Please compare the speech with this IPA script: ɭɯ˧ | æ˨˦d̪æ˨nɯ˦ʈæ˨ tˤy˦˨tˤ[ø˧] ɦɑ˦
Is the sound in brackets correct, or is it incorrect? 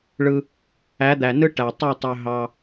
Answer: correct